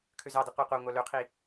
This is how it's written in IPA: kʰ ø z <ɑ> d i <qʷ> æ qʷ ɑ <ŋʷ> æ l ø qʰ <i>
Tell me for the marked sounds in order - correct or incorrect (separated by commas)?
correct, correct, correct, correct